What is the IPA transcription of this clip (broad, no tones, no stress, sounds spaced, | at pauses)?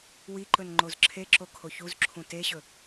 w i ǃ ɵ n ŋ͡ǃ o z ǁʰ e ǁ o kʰ o ç u z ǁʰ ũ t e ɕ ɵ